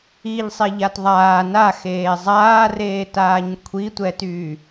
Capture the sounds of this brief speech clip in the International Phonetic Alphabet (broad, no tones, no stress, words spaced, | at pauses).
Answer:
iʎsˤeʎat ðˤaː naxeː zˤaːreːtaːɲ kʷʰitʷɛtyː